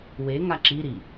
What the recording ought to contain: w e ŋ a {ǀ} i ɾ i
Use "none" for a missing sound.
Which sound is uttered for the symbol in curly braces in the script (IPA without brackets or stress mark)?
ǁ